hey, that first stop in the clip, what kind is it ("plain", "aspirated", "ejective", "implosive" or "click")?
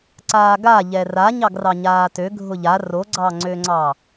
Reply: click